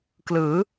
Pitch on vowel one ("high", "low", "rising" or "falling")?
rising